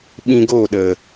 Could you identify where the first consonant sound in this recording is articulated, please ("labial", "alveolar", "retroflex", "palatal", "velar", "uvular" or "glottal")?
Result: labial